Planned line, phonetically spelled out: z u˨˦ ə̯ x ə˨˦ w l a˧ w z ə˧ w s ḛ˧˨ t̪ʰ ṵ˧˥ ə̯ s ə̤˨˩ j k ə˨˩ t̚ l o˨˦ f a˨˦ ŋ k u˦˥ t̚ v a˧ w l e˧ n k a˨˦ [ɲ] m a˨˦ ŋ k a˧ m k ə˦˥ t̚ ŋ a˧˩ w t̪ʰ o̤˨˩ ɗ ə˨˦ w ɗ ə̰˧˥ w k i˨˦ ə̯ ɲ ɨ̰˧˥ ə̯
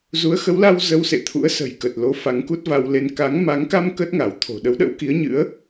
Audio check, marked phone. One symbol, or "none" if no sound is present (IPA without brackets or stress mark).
ŋ